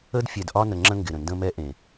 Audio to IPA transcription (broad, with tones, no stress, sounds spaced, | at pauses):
ə˦ d fʲ ɛ˨ d ʔ ɒ˦ n ə˨ ŋ͡ǁ ə̃˦ ŋ ɡ ɪ˨ ɾ ə̃˨ n d ə̃˦ m ɛ˦ ʔ ẽ˨